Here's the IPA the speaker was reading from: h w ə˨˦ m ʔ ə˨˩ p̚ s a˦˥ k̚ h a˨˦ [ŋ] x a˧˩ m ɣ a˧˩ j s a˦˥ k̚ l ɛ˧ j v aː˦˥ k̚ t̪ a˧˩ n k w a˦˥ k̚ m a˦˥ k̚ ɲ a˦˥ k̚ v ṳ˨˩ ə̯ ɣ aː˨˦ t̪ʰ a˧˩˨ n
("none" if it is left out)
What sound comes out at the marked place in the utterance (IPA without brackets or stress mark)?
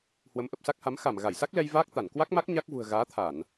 m